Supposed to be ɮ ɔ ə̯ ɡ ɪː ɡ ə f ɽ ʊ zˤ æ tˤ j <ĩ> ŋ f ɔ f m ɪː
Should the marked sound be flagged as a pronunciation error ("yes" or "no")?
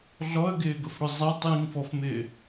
no